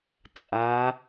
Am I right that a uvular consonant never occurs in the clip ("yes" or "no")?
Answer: yes